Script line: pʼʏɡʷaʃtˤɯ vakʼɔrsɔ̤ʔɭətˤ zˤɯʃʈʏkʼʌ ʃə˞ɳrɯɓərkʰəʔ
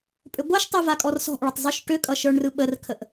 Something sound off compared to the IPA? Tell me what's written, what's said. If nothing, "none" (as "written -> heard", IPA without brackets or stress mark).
none